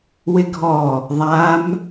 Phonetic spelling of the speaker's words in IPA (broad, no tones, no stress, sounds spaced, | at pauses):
w ɪ ɡʱ ɔ | ðˤ a m